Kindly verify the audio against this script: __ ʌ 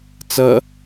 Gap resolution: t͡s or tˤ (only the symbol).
t͡s